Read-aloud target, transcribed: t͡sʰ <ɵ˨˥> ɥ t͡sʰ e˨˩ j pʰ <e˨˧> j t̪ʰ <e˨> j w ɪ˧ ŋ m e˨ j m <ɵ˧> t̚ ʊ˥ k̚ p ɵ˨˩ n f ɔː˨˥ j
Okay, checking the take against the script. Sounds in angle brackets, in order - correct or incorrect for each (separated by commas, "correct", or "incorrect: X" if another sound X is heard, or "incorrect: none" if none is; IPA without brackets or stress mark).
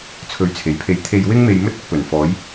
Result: correct, incorrect: e˨˥, correct, correct